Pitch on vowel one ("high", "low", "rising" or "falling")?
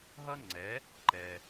high